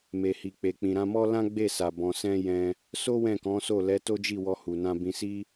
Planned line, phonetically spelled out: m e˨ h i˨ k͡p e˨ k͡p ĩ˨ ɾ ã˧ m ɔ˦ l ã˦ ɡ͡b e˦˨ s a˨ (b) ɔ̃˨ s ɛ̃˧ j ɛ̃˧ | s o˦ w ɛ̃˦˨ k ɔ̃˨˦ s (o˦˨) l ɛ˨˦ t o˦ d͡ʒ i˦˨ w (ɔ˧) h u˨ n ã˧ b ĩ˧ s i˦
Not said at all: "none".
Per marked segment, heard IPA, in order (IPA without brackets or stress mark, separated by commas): b, o˦˨, ɔ˧